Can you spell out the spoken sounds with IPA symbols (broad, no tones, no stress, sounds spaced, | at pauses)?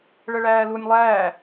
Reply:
ɭ ə ɭ æː l u nʲ lˠ æː